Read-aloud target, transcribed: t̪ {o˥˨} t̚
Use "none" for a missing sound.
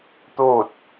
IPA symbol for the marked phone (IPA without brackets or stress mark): o˥˨